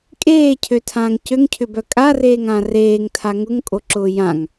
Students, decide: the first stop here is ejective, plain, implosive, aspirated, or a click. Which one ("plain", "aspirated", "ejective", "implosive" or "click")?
ejective